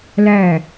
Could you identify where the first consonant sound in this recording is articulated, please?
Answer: alveolar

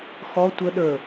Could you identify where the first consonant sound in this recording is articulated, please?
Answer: velar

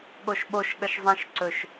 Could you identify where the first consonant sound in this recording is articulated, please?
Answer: velar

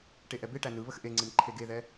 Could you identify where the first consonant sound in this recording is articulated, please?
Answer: retroflex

